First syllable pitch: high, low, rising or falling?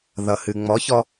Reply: low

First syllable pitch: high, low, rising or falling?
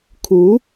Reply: rising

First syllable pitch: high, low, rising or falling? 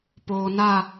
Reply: low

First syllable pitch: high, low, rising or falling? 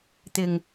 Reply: low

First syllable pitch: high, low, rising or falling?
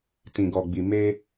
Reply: low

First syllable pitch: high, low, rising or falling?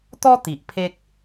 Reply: high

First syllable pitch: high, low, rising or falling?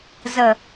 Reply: low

